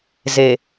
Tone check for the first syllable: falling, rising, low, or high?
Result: low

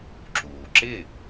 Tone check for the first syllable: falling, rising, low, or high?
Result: low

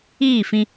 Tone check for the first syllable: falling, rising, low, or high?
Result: falling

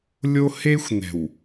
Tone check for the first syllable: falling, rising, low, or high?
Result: high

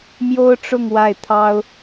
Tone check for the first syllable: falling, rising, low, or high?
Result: high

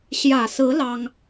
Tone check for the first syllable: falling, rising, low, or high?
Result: low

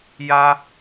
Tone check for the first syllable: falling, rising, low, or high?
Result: high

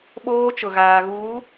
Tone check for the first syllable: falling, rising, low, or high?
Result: high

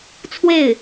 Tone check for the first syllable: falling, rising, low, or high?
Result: falling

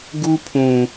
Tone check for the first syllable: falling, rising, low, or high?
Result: high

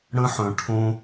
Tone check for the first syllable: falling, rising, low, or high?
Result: high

